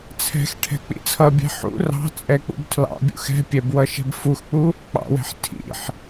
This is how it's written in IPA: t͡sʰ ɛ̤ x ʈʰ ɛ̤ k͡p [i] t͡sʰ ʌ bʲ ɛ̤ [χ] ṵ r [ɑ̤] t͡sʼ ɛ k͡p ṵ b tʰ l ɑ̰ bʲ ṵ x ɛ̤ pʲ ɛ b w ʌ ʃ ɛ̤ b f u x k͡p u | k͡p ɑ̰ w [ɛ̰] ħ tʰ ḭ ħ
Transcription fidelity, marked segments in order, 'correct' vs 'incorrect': incorrect: ḭ, incorrect: ħ, correct, incorrect: ɛ̤

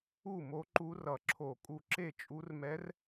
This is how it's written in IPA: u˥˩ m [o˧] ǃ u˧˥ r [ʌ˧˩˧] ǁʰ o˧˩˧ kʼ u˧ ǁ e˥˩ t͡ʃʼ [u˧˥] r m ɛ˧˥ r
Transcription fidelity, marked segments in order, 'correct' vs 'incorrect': incorrect: o˧˥, correct, correct

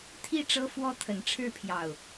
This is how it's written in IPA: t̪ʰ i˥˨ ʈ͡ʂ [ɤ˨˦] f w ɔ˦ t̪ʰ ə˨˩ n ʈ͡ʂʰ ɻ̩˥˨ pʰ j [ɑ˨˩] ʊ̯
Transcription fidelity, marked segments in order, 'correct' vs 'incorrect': incorrect: ɤ˦, correct

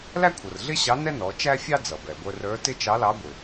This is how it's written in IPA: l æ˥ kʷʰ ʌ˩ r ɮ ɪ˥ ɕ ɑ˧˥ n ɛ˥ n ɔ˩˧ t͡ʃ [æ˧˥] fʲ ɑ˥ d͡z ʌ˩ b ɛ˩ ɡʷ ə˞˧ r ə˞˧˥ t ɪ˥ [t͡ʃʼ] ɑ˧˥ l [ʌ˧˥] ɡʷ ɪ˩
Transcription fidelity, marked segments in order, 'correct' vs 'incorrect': incorrect: æ˥, incorrect: t͡ʃ, incorrect: ɑ˧˥

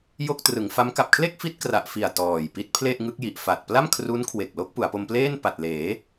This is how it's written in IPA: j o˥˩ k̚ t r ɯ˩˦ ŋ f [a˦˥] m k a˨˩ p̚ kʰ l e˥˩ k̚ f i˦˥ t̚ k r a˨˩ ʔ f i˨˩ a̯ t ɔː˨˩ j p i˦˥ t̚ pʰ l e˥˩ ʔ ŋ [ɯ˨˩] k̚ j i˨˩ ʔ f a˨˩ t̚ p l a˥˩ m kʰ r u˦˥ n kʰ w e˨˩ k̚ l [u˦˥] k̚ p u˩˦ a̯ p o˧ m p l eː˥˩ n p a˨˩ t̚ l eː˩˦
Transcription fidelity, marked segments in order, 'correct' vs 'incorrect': correct, incorrect: ɯ˦˥, incorrect: o˦˥

